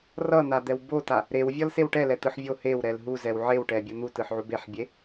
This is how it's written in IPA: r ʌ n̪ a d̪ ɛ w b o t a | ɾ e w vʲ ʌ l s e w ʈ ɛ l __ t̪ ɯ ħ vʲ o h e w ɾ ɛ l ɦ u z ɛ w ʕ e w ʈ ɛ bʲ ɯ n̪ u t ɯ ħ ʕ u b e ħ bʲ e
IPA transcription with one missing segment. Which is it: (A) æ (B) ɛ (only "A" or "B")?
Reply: B